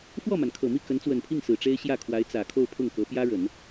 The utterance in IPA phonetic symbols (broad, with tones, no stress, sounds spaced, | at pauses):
f w ɔ˥˩ m a˩ n kʰ ɤ˨˩ m i˥˩ k ə˧˥ n t͡s w ə˨˩ n pʰ i˥˩ ŋ s ɹ̩˨˩ ʈ͡ʂ e˥ ɪ̯ ɕ j ä˥˩ kʰ w a˧˥ ɪ̯ t͡s ä˨˩ kʰ o˥˧ ʊ̯ pʰ ʊ˥˩ ŋ k ɤ˧˥ p j ä˥ ɻ ə˨˩˦ n